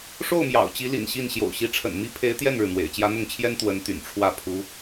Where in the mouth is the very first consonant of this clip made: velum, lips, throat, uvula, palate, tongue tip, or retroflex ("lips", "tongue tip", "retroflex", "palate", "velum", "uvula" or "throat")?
retroflex